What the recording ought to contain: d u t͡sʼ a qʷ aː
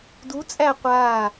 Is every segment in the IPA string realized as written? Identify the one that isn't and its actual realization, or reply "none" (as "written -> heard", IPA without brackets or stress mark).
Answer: a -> æ